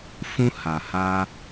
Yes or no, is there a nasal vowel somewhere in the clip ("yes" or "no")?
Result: yes